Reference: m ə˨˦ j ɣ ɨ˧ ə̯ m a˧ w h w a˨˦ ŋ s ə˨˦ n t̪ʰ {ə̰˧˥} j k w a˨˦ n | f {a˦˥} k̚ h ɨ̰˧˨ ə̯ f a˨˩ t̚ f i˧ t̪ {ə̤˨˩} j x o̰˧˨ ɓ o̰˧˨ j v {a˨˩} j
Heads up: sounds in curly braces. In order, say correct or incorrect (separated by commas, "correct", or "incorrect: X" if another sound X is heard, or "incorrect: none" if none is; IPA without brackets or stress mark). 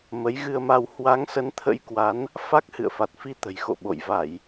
correct, correct, correct, incorrect: a˧˩˨